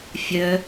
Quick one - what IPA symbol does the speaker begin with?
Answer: fʲ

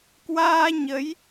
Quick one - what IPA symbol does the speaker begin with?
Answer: k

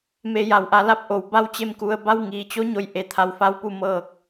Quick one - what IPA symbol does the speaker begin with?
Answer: m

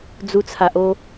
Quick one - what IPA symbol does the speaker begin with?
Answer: d͡z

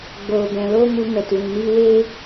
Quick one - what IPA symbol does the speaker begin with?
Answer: ɡ͡b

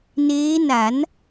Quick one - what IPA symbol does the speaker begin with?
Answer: n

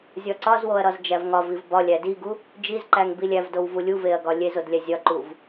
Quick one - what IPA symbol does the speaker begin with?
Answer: zʲ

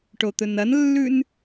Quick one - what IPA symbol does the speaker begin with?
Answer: ʈ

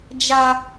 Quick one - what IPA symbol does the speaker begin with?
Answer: d͡ʒ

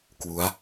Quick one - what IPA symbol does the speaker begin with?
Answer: k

